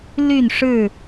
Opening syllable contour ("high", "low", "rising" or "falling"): falling